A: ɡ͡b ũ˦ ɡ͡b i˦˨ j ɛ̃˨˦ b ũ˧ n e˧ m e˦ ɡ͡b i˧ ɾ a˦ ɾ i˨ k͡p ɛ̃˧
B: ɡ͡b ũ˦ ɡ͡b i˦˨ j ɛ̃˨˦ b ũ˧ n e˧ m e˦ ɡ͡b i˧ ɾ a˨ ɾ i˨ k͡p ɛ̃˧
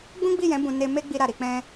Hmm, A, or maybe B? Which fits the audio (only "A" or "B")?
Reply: B